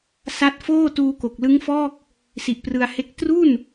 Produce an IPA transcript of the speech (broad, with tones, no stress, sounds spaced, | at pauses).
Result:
s a˦˥ t̚ f oː˥˩ t uː˧ k o˨˩ k̚ l ɯ˦˥ ŋ f ɔː˥˩ k̚ | s i˨˩ ʔ p r ɯ˧ a̯ h e˦˥ k̚ t r u˥˩ n